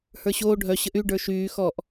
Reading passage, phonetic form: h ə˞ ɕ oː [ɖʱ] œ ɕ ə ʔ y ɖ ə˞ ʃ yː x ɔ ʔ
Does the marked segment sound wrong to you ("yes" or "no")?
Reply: no